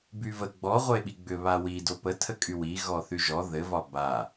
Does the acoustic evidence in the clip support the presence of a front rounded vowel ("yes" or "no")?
yes